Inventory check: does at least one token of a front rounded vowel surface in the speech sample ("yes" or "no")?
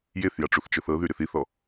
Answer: yes